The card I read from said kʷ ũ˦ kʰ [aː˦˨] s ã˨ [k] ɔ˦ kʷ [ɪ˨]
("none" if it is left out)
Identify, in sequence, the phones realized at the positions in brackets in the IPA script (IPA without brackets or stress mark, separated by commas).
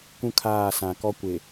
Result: aː˦˨, k, ɪ˨